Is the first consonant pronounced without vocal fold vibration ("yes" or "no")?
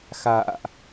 yes